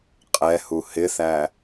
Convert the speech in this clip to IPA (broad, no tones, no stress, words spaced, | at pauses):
qʼɛhu hɪθæ